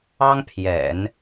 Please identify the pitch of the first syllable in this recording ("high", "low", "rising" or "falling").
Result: high